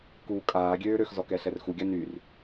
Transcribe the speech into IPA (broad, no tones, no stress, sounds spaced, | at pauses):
k uː kʼ aː ɡʲ øː ɾ ø x z ɔ k ɛ ɬ ɛ r x u ɡʲ a n y r